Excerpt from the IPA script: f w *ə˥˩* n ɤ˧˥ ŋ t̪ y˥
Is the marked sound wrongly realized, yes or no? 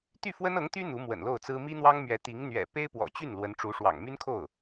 yes